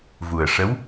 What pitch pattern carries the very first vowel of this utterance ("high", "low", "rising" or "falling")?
low